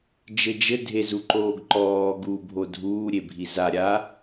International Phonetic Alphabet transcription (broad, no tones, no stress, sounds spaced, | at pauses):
d͡ʒ ɘ d͡ʒ ɘ dʱ e z u ǃ oː ɡ ǃ ɔː ɡ uː bʱ o dʱ uː ɾʲ e bʱ i z a ɾʲ a